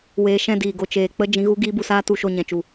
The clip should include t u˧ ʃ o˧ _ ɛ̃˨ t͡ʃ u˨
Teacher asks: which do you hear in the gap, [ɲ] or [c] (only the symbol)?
ɲ